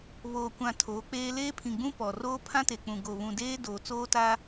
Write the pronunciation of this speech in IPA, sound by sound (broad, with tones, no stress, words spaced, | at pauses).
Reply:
βoː˨kʷã˨ tʰoː˨˦k͡peː˦ leː˦pʰĩ˨ɡ͡bũ˦ pɔ˨roː˦ pʰã˦te˨k͡pũ˨ ɡo˨βũ˨deː˦ doː˨t͡soː˦ta˦